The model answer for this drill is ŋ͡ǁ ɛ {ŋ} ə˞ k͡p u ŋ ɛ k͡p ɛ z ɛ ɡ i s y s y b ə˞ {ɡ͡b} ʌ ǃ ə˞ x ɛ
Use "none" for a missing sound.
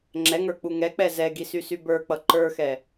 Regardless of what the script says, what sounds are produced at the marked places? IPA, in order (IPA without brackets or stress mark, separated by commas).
ŋ, k͡p